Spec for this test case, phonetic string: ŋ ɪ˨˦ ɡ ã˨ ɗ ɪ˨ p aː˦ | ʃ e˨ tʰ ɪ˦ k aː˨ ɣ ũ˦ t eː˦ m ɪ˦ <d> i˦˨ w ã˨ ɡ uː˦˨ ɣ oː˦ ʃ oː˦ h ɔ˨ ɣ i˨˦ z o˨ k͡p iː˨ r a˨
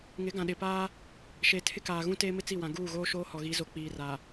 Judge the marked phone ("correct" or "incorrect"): incorrect